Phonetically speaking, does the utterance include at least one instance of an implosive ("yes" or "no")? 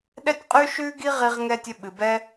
yes